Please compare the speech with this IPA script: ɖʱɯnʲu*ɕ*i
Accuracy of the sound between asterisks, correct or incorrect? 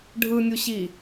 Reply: correct